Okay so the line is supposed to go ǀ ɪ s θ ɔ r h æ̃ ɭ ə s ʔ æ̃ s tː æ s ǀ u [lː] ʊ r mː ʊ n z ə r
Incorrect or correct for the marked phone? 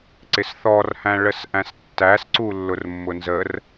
correct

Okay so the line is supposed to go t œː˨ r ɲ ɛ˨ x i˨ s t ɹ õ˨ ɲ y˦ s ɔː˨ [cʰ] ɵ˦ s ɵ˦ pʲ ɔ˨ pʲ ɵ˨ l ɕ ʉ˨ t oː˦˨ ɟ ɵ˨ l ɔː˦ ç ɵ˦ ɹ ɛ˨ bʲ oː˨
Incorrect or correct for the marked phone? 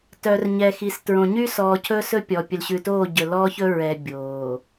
correct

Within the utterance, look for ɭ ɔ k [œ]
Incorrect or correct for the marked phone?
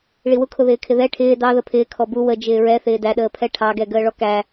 incorrect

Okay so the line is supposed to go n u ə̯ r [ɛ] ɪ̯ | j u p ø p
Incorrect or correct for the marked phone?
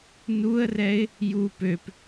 correct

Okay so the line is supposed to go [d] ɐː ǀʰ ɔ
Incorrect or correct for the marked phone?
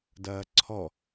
correct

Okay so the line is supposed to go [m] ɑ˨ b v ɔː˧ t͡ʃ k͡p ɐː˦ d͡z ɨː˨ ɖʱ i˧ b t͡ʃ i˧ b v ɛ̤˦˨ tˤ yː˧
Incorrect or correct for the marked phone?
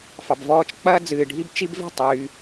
incorrect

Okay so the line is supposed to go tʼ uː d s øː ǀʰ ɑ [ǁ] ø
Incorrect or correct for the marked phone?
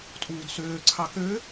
incorrect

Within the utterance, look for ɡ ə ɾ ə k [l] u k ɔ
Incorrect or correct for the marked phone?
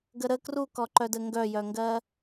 incorrect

